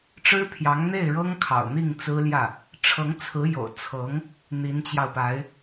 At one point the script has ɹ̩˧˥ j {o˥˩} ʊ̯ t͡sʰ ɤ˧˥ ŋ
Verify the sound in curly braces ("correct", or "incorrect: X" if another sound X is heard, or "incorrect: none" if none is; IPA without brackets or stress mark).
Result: incorrect: o̰˨˩